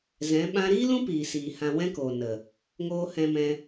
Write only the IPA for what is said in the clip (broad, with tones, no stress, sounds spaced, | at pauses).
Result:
z ɛ̃˨˦ ɓ ã˦ ɾ iː˦ l ũ˦ p iː˨ s iː˨ h ã˧ w ɛ̃˦ k oː˨ n ə˨ | ŋ oː˧ h ɛ̃˧ m ɛ̃˧